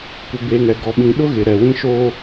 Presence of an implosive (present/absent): present